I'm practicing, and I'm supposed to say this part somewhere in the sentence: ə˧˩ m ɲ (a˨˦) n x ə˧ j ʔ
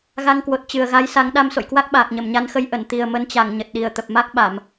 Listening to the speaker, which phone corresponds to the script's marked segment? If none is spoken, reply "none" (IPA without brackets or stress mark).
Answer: a˨˦